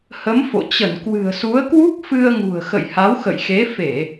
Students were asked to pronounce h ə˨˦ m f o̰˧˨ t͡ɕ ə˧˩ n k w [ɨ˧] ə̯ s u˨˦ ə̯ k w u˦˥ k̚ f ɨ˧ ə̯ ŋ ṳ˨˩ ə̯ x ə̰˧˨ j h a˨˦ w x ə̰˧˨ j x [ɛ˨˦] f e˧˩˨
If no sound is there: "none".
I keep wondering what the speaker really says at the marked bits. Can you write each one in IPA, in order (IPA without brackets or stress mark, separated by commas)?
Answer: ɨ̤˨˩, e˨˦